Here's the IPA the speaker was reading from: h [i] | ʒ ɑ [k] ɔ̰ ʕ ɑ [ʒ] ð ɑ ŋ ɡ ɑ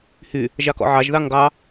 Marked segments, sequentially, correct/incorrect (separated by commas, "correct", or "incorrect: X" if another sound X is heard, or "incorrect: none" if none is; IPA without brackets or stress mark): incorrect: y, correct, correct